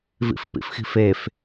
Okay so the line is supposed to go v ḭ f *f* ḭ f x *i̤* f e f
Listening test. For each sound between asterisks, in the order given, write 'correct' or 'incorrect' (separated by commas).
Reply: incorrect, correct